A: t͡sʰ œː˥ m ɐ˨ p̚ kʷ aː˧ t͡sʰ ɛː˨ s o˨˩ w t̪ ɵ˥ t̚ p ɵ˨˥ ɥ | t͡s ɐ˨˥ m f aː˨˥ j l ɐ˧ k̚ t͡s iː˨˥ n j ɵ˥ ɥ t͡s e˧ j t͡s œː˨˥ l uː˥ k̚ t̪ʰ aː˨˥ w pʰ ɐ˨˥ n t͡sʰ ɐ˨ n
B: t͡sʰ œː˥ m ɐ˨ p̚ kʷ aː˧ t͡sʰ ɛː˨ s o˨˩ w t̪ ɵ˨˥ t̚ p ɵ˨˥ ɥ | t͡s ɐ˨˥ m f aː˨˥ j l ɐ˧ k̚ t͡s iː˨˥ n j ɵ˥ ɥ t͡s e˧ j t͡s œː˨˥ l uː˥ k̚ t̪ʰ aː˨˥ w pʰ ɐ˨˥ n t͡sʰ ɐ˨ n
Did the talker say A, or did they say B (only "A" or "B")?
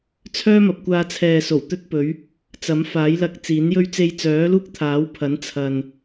A